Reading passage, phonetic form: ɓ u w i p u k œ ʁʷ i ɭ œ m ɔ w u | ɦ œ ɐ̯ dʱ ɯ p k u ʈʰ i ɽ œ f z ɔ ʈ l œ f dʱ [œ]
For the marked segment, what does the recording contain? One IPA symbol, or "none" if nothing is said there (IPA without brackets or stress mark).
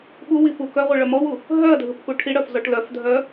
œ